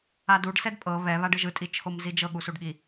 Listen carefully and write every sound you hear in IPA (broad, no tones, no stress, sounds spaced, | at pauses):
a d u ɖ s ɛ d pʼ ɤ β ɛ β a ɖ ɯ ʒ ɯ tʼ i t͡ʃʰ o m z i d͡ʒ ɤ ɠ u s u ɖ ɠ i